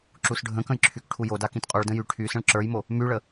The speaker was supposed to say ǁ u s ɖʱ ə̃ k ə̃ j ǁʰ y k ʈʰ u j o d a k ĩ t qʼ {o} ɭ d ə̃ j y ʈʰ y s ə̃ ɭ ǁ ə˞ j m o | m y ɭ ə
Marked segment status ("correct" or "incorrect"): incorrect